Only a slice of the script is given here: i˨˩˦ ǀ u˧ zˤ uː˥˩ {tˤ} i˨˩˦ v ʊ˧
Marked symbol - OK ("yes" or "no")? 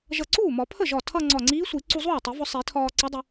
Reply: yes